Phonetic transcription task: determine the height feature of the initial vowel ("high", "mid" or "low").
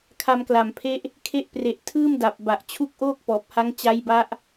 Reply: low